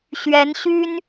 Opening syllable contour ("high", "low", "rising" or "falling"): rising